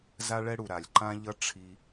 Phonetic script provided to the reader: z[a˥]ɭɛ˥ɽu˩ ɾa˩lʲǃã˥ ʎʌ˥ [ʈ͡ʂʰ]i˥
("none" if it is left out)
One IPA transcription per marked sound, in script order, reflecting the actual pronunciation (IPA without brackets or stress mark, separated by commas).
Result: a˥, ʈ͡ʂʰ